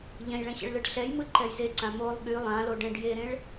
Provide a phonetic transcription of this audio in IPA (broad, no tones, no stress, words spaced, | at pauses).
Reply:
ʎɛ̃jɭɛ̃ɕḛɭlɯɖ ɬɛjmɯǃɛj zeǀã molˠ ɠy lˠãloɖɛ̃ɖ jeɾẽɭ